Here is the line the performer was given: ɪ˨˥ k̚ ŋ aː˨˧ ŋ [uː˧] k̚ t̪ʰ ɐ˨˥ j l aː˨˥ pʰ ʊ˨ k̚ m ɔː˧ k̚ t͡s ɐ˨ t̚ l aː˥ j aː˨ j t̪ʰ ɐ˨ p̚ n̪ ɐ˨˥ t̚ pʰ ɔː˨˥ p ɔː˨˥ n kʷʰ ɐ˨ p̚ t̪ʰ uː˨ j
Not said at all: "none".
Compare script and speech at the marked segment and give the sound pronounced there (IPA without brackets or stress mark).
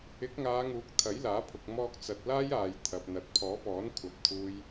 uː˨˥